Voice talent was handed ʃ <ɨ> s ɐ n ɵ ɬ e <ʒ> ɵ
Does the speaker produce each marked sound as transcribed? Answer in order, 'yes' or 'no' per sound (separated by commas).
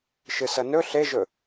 yes, yes